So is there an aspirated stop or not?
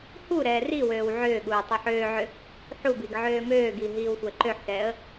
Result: no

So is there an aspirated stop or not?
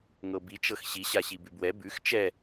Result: no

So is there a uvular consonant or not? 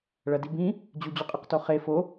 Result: yes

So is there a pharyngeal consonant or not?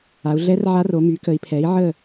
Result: yes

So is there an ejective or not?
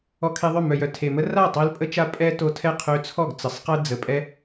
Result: yes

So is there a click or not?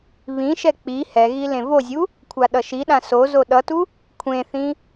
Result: no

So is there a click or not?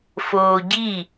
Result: no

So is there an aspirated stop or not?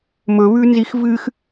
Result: no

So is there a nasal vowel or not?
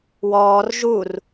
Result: no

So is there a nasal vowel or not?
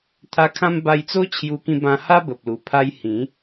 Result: yes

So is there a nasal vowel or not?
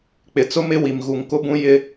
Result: yes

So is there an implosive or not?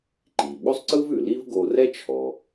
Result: yes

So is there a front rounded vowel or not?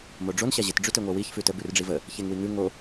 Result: no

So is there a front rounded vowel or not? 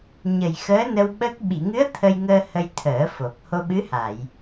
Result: no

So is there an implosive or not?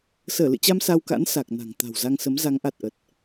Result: no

